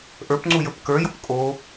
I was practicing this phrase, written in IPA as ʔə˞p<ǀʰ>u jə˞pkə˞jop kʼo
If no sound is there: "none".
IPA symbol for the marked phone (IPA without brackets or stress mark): ŋ͡ǀ